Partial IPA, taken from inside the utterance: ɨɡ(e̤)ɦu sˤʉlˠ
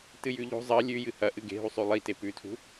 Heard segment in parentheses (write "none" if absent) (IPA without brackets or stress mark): e̤